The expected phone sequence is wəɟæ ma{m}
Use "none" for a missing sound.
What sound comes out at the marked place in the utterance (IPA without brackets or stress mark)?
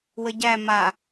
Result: none